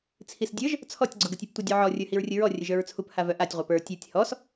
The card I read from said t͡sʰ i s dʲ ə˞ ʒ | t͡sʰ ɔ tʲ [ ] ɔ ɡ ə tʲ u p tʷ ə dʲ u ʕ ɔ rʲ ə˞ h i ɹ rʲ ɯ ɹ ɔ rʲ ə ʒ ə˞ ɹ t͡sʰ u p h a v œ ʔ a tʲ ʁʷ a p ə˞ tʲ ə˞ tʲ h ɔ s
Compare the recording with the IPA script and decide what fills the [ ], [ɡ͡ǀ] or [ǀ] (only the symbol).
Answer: ɡ͡ǀ